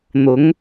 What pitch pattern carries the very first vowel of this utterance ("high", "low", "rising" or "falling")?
rising